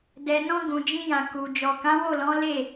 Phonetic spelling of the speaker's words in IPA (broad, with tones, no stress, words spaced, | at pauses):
dɛ˨nɔ̃˧ ɡũ˨d͡ʒĩ˧jã˨ ku˨ d͡ʒɔ˨kã˨˦wo˦˨lɔ̃˨˦ le˦˨